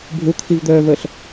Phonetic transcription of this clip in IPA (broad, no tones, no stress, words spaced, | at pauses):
bʱut̪ʰivd̪œːvəːɬ